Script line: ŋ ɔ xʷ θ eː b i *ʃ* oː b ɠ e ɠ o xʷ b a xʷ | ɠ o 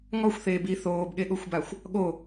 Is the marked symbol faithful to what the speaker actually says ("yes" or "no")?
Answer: no